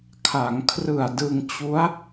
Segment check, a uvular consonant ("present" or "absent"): absent